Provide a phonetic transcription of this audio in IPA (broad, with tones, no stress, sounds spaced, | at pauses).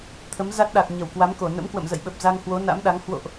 t̪ʰ ə˨˦ m z a˦˥ t̚ ɗ a˨˩ k̚ ɲ ə˧˩ w k w a˨˦ m k o˧˩ n ə̰˧˥ m k w ə̰˧˨ m z ə̰˧˨ j ɓ ə˨˩ p̚ z a˧ ŋ h w o˨˦ n a̰˧˥ m ɗ a˨˦ ŋ h w o̰˧˨ ʔ